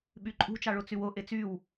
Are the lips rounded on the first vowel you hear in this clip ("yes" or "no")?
yes